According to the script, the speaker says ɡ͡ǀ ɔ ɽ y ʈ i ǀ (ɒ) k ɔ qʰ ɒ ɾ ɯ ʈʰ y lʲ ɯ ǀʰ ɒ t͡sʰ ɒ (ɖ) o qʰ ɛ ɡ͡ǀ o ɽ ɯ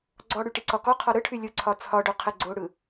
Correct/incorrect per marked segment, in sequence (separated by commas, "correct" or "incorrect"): correct, correct